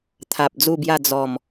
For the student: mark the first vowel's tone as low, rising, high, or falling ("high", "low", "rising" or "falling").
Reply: low